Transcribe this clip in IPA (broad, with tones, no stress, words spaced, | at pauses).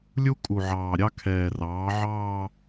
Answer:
lʲu˥ kʼu˨˩ʕɑː˨˩ɾʲɑ˥ kʰɛː˨˩rɑː˩˥ ʕɑː˥˧